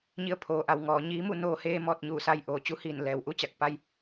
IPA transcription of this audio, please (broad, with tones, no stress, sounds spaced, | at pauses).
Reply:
ɲ i˧˥ ə̯ pʰ oː˩˧ ʔ a˩˧ w ŋ ɔː˩˧ ɲ iː˧˥ m u˥˨ n oː˧ h eː˧ m ɔː˧ t̚ ɲ uː˧˩ s a˧ j ʔ oː˩ t͡ɕ u˧˥ h iː˧˩ n l ɛː˩˧ w ʔ u˧ t͡ɕ a˧˩ k̚ p a˧ j